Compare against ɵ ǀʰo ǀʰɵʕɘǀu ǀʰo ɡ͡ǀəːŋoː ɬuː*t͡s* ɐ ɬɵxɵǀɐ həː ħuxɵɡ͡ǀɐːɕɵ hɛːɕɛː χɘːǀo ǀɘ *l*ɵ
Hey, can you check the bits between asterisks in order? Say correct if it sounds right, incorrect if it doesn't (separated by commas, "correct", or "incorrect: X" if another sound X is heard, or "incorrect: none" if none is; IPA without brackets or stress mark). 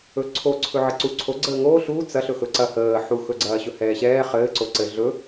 correct, incorrect: ɮ